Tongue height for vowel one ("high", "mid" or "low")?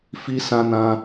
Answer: high